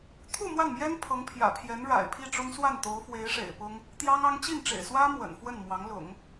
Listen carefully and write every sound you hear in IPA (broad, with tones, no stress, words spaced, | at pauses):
t̪ʰu˥˧ mwa˥˩nmjɛ˥n pʰɤ˧˥ŋpʰjä̰˨˩pʰjɛ˧˥n ɻa̰˨˩ɪ̯ pʰi˥˩ʈ͡ʂʊ˥ŋswa˥˩n t̪o˧˥ʊ̯fwe˧˥ɪ̯ʂḛ˨˩ɪ̯pʊ˥ŋ | t̪jɑ˥ŋɑ˥ŋ t͡ɕi˥˩nʈ͡ʂḛ˨˩ɪ̯swä˥ mwə̰˨˩nfwə˥˩nmwɑ˧˥ŋ lʊ̰˨˩˦ŋ